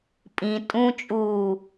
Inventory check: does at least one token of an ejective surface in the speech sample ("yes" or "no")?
yes